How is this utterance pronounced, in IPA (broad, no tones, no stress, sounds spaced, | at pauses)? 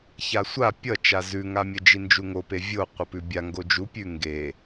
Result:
ç a sʷ a pʲ ʌ t͡ʃ a z ʉ ŋ a mʲ ə d͡ʒ i n d͡ʒ u ŋ o p e vʲ o qʷ ʌ p ʉ bʲ a ŋ ɡ o d͡ʒ u pʲ ʉ ŋ ɡ e